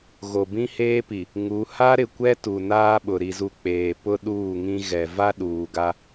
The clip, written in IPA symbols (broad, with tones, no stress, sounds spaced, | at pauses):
ɣ o˨ b ĩ˦ h eː˦ p i˨ | ŋ u˨˦ h a˦ ɾ ɪ˨ kʷ ɛ˦ t u˨ n aː˦ ɓ ʊ˨ ɾ i˨ z u˨ k͡p eː˨ p ʊ˦ ɗ uː˦˨ ŋ ĩ˦ ɣ ɛ˨ v a˦ ɗ uː˨ ɡ a˦